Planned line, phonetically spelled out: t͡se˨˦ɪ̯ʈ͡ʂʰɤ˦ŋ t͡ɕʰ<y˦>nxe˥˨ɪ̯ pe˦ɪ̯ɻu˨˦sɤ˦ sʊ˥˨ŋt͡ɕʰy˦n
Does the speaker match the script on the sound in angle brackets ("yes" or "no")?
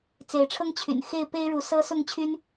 no